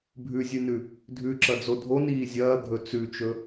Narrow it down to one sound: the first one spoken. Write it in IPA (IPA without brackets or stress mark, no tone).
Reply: bʱ